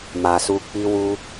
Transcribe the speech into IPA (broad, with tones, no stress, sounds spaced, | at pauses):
m a˨ s u˧ k͡p i˧ w u˧